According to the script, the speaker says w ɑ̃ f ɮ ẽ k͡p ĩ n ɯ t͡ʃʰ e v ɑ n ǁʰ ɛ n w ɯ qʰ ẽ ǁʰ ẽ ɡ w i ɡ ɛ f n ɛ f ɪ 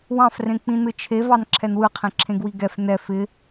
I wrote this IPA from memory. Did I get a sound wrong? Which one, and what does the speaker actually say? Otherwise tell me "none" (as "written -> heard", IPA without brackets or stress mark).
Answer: ɮ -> r